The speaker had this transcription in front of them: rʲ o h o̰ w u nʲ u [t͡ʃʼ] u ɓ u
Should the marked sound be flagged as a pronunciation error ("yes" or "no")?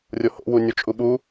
no